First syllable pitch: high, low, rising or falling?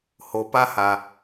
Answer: low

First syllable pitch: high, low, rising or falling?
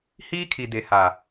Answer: high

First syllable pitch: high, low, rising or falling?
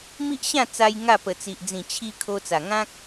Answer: high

